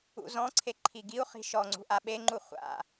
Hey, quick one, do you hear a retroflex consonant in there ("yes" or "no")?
no